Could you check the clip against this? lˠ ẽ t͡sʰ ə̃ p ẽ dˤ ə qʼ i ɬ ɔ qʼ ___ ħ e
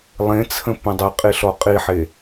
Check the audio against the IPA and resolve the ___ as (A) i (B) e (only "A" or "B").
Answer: A